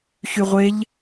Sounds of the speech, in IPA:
çyʁʷeʎ

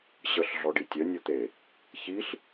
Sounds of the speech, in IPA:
ɕəɬ ɮɔɖitʲœ nʲot̪e | çiɬ

